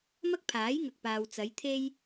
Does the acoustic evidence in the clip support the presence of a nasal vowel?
no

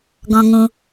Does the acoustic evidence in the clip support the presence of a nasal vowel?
yes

